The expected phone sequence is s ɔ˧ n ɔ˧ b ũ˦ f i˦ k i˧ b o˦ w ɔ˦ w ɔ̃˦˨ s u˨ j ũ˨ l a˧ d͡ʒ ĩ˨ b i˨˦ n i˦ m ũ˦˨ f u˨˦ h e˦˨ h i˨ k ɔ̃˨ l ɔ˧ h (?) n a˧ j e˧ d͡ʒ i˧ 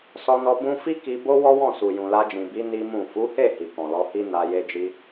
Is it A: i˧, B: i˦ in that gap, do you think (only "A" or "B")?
B